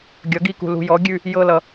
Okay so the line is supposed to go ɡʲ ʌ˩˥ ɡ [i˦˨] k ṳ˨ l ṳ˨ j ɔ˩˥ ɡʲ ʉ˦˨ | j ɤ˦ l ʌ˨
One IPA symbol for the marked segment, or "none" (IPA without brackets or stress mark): i˦˨